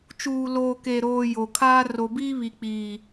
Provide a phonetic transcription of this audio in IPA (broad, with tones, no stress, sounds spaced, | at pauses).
t͡ʃ uː˨ l oː˨ k e˨ ɾ oː˨ j o˨ kʰ aː˦ r o˨ b iː˦ β i˨ k͡p iː˨